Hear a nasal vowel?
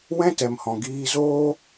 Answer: yes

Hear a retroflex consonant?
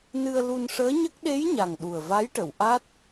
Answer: yes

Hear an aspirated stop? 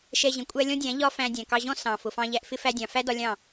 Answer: no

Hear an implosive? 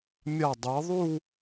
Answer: no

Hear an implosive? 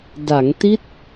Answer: no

